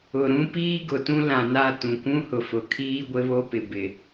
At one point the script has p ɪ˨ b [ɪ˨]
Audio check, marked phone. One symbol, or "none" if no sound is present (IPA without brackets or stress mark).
ɪ˨